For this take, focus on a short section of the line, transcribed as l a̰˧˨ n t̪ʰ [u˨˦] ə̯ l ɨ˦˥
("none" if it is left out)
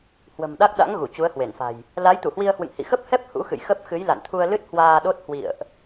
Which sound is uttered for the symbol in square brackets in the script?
u˧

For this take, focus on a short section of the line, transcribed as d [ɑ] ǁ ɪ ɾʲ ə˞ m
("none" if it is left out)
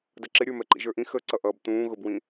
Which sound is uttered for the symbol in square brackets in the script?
ʌ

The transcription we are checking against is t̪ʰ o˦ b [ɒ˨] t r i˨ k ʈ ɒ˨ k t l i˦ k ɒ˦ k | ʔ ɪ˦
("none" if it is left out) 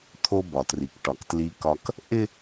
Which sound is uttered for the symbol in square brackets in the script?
ɒ˨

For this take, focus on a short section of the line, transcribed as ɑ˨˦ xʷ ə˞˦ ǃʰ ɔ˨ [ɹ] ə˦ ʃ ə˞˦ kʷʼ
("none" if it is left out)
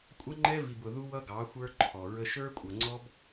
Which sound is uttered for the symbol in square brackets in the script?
ɹ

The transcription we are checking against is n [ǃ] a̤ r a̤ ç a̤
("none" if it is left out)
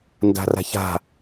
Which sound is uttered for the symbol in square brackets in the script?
d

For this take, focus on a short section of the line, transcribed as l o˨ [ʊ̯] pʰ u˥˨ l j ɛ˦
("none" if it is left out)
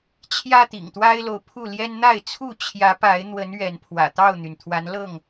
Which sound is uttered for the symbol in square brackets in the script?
ʊ̯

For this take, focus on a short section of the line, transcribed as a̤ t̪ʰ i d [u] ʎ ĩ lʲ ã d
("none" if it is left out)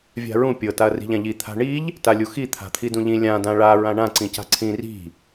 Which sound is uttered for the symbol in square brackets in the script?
ũ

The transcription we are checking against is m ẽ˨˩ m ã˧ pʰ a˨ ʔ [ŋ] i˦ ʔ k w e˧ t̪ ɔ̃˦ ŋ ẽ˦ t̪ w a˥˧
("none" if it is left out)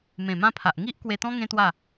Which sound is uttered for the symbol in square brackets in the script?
ŋ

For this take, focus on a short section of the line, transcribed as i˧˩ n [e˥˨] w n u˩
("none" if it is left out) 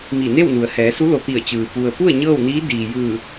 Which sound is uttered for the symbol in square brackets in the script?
e˥˨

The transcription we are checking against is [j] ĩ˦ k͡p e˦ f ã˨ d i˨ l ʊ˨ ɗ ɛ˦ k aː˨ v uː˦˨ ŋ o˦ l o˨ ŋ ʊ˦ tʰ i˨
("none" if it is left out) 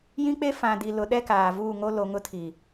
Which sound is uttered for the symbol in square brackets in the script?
j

